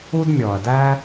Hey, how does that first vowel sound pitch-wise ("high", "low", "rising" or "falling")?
high